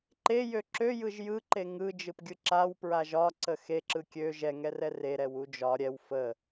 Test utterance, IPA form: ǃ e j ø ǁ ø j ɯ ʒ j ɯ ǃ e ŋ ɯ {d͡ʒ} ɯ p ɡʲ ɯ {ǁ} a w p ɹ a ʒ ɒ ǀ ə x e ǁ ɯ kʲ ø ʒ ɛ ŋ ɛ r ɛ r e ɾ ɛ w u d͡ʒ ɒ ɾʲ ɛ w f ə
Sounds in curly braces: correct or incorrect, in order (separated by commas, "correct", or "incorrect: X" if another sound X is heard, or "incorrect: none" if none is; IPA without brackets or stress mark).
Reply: correct, correct